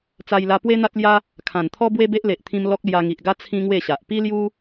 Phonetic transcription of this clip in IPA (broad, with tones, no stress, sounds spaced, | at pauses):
t͡s a˧ j l a˧ p w e˦ n̪ a˦ t̚ l j a˦ | kʰ ã˨˩ n t̪ʰ ɔ˦ b w e˦ b e˦ ʔ l e˨ ʔ t̪ʰ ĩ˧ m l ɔ˦ k̚ l j a˧ ŋ i˨ ʔ ɡ a˦ t͡sʰ ĩ˦ ŋ w e˥˧ ɕ a˨ ʔ p i˦ l j u˦